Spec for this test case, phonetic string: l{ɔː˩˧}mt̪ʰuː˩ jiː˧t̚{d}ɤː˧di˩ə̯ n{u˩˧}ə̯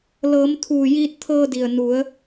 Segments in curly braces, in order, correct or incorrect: incorrect, incorrect, correct

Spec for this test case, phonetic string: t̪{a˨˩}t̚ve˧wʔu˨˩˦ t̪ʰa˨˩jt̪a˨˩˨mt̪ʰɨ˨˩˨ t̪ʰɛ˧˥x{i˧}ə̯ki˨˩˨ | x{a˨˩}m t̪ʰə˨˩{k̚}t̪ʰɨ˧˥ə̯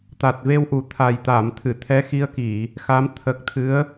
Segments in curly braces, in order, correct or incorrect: correct, correct, incorrect, correct

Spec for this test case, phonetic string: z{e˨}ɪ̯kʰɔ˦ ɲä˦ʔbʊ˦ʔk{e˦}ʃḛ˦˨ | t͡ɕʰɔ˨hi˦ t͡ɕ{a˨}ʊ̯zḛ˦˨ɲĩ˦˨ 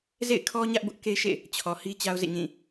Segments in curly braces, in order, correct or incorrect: incorrect, correct, incorrect

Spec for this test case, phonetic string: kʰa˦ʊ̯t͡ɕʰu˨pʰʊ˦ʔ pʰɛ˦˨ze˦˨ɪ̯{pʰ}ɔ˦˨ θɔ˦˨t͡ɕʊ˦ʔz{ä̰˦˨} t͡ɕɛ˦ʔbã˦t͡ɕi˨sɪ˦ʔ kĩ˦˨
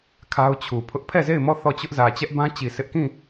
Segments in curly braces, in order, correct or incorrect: incorrect, incorrect

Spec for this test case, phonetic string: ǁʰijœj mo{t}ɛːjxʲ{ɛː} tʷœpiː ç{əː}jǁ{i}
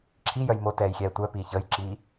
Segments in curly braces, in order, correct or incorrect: correct, correct, correct, incorrect

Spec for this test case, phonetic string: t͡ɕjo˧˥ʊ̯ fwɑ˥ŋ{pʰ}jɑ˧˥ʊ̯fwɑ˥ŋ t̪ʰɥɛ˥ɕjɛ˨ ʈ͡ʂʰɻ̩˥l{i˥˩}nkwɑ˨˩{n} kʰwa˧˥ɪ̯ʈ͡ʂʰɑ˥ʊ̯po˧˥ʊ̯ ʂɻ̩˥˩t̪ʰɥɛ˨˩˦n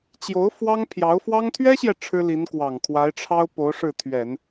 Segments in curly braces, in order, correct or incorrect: correct, incorrect, incorrect

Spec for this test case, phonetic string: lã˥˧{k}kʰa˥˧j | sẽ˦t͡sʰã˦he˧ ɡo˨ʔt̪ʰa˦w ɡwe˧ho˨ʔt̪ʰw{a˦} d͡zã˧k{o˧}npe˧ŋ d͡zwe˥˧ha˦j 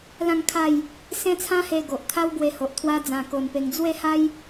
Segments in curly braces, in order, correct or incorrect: incorrect, correct, correct

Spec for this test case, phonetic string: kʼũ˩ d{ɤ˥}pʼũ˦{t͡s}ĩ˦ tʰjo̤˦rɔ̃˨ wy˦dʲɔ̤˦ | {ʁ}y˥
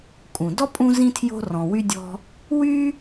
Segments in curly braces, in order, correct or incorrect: incorrect, incorrect, incorrect

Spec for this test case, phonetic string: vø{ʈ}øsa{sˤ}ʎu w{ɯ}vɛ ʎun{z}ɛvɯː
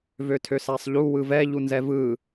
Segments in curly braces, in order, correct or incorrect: incorrect, correct, correct, correct

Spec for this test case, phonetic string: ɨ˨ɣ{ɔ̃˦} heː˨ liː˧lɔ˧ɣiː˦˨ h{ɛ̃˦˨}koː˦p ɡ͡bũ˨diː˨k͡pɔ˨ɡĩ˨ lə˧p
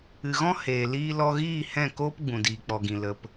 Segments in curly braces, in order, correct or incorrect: correct, correct

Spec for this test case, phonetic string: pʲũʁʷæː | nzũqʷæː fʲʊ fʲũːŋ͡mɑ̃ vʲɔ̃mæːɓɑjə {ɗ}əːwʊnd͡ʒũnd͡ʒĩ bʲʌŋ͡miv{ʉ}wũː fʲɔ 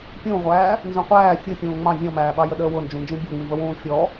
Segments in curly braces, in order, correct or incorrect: correct, incorrect

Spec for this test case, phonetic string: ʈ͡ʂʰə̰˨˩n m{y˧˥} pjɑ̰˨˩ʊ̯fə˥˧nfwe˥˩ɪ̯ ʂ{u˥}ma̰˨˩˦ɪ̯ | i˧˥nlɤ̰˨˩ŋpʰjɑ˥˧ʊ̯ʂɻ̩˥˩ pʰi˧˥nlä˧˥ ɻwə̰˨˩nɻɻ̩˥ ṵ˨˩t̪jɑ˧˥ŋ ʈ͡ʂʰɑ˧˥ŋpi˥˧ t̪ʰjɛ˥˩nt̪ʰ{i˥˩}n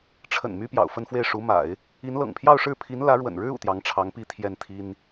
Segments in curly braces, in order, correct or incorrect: incorrect, incorrect, incorrect

